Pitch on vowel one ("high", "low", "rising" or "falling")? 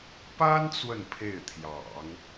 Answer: high